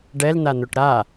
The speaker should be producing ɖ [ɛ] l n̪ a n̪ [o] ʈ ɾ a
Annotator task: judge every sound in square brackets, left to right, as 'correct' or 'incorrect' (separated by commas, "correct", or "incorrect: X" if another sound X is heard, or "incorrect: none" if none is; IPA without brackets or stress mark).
correct, correct